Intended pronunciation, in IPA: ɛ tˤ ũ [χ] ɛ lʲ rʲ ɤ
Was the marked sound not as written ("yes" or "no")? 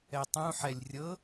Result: yes